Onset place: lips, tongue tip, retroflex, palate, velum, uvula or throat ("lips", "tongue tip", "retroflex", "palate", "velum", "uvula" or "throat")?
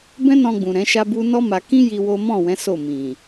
lips